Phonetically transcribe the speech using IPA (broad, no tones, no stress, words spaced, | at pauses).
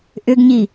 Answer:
ʔʏɡɲi